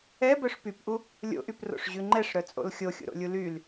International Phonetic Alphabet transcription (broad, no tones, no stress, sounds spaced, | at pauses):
ɛ b œ ʂ p y p ʔ u | lʲ o̰ ʔ y p r o̰ ʂ ʑ ʉ ŋ͡ǃ ɛ ʂ ɾ œ t͡sʼ o̰ l xʲ o xʲ ṵ ɾ o̰ lʲ u l y l